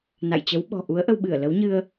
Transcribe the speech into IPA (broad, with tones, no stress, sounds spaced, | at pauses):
n a̰˧˨ j t͡ɕ ə˨˦ w ɓ ɔ̤˨˩ ʔ u˨˦ ə̯ ʔ ə˧ w ɓ ɨ˧˩ ə̯ l ə˨˦ w ɲ ɨ˧ ə̯